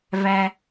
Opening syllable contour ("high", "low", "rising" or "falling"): low